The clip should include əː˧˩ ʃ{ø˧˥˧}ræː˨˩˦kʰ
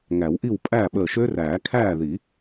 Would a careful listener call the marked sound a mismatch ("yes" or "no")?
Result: yes